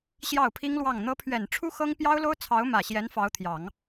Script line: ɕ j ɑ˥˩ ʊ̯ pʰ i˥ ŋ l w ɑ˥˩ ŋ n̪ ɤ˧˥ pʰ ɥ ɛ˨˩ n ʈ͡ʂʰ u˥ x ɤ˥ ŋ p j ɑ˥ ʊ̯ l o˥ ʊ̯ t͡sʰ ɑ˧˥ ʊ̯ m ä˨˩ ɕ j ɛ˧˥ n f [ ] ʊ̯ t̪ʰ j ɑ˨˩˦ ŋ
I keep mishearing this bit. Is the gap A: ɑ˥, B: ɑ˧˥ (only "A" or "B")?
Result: B